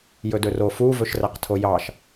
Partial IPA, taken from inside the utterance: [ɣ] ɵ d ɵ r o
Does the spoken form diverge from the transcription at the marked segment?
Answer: yes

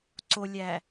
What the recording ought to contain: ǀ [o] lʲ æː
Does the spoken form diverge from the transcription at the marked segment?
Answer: no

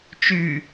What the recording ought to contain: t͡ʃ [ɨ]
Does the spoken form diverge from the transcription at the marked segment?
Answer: yes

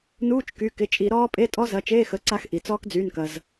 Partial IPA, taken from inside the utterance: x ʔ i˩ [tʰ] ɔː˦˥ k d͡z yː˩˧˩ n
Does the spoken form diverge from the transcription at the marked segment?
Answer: yes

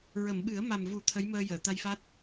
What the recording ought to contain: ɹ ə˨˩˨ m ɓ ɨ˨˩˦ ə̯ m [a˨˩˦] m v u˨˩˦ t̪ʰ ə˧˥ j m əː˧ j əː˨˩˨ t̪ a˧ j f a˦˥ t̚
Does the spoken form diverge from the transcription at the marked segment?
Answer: yes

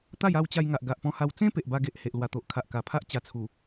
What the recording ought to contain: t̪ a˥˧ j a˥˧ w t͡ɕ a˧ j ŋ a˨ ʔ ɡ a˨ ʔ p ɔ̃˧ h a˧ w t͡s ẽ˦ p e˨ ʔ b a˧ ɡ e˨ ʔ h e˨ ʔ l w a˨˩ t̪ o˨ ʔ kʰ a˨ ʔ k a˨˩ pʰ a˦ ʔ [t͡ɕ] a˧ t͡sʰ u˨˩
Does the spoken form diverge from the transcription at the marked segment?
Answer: no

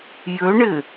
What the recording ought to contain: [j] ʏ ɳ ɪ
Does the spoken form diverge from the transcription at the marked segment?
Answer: no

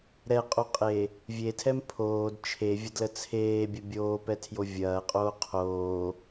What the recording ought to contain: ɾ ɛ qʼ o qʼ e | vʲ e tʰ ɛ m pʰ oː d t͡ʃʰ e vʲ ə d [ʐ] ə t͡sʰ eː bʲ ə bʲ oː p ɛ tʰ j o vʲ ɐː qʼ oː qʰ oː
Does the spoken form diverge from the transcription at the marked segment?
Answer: yes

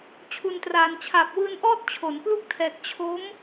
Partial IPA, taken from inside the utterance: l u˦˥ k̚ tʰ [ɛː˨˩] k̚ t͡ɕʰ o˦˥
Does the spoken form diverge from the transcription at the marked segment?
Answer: no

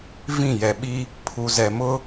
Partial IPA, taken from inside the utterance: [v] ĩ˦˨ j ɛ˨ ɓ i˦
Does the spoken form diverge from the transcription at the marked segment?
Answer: no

